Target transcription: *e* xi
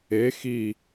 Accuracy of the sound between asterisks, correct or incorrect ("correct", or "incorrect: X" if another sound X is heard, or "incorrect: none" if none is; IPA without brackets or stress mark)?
correct